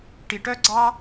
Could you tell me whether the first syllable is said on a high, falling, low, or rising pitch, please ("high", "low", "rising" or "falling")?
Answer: low